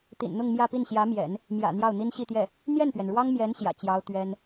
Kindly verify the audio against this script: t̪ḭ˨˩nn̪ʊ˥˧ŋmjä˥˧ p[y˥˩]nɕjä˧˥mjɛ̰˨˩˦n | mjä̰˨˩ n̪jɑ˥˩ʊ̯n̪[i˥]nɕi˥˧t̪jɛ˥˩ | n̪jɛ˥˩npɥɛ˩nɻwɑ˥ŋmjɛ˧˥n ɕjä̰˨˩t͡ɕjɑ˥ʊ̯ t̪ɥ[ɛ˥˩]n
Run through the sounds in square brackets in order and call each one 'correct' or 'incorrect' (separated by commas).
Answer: incorrect, correct, incorrect